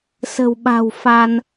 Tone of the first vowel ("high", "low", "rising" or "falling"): low